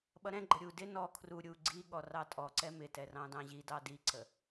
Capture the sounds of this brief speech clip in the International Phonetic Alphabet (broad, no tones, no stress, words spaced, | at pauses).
ɓʌɾɛ̃ɡ͡ǃə ɾʲu dɪ nɔ kʰru ɾʲu ɡ͡ǀiɠɔ rɑtʼɔǀɛ mɪtɛ rɑ̃dɑ̃ʑidɑ diǀə